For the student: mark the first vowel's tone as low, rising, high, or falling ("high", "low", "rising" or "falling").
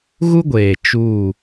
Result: high